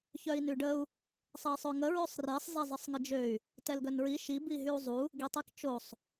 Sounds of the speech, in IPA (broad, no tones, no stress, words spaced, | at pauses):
çœi̯nyɖəu̯ | sˤɛi̯sˤøŋə ɹøsˤresˤ zezˤisˤŋəd͡ʒøy̯ | tɛlɡœnɹi ʃi biɦyu̯zˤu | ɡitˤikt͡ʃosˤ